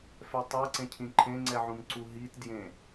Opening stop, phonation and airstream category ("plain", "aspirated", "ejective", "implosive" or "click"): plain